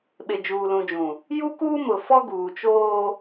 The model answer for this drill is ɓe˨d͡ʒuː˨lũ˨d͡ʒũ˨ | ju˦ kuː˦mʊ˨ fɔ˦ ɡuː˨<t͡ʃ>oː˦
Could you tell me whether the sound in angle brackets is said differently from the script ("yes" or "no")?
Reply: no